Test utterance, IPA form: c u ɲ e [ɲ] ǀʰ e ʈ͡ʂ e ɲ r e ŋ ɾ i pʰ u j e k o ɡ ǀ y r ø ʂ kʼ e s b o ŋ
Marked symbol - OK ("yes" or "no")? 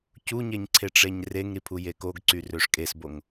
yes